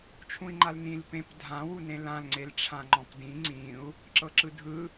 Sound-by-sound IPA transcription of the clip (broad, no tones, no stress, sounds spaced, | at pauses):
t͡ʃʰ ũ i̯ ŋ͡ǃ a l n ĩ l p ẽ p dʱ ã w u n ẽ l ã l ŋ͡ǀ e l ʈ͡ʂʰ ã ŋ͡ǃ ɔ̃ p d ĩ ŋ͡ǀ ĩ u̯ | ǁ ɤ ǁ ɯ dʱ ɯ